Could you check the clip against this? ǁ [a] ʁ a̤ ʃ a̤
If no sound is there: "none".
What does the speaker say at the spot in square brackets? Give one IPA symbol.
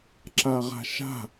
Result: a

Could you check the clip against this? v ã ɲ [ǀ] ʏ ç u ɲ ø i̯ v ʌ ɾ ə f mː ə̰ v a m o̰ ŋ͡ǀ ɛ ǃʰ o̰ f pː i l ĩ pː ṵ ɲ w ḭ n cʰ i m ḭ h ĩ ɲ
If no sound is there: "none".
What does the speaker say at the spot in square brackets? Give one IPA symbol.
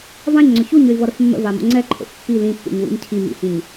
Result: ŋ͡ǀ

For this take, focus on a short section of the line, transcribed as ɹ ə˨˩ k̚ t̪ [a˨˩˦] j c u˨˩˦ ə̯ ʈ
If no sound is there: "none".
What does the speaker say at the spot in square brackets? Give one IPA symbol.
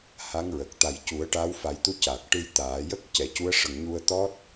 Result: a˨˩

